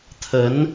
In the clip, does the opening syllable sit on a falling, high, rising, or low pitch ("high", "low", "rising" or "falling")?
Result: rising